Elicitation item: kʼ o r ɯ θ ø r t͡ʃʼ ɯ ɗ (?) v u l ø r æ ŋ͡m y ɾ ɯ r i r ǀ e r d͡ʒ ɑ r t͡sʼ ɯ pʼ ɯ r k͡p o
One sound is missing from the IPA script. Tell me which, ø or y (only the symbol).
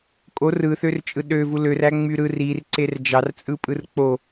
ø